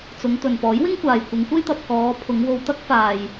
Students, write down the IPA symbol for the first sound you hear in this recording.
t͡s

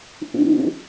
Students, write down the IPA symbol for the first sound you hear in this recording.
ʔ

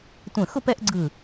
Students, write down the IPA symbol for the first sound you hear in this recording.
tʷ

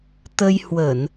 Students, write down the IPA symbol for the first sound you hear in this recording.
t̪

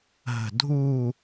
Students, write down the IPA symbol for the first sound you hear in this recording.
ɦ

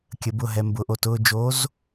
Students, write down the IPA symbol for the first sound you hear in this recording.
kʲ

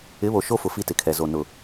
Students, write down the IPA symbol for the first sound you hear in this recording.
ɪ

